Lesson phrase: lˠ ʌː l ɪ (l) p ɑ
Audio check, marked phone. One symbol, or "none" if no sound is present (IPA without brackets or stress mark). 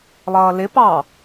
none